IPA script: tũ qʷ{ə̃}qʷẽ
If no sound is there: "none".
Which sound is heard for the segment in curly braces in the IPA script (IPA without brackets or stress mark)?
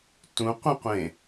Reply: ə̃